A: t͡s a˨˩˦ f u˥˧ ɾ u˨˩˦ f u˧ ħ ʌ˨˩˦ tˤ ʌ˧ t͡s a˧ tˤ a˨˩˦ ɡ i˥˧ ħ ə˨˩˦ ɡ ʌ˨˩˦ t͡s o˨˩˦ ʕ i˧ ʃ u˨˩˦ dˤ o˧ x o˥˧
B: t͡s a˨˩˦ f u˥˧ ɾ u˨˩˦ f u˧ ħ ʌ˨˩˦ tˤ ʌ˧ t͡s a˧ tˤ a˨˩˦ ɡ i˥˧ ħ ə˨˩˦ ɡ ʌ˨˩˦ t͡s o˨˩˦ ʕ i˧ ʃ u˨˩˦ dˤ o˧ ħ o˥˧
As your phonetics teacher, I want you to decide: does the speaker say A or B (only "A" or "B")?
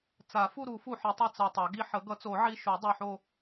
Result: B